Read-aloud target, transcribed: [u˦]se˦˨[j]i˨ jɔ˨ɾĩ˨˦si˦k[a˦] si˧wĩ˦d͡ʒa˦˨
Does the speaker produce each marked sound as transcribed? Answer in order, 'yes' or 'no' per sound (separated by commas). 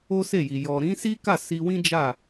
no, yes, no